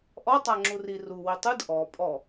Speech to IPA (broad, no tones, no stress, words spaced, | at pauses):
ʔɔtˤa ŋ͡ǁuri ru witˤɯd ʔɔ pʼɔ